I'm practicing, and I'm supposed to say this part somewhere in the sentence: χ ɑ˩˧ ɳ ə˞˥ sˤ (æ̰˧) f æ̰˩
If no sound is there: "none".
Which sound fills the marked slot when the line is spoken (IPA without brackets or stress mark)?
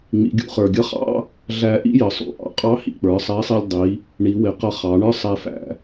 æ˧